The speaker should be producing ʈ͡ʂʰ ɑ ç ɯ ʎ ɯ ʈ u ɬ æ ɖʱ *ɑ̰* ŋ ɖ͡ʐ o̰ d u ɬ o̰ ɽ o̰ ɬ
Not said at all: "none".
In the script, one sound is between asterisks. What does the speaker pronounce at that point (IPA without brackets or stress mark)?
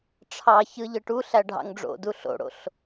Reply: ɑ̰